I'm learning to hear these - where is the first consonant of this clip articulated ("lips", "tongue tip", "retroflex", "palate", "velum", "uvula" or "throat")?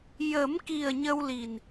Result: palate